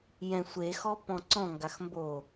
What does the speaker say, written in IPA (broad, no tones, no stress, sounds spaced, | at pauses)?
j ɛ̃ sʷ e x ɔ p ɔ̃ ǀ ɔ̃ ŋ ɡ a x m b o